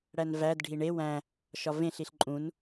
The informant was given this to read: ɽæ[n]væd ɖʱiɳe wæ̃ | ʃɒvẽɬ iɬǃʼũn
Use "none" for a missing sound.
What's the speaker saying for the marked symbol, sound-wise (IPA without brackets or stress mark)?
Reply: n